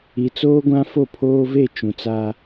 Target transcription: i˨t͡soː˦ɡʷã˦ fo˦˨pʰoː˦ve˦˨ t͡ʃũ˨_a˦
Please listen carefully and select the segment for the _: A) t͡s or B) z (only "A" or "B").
A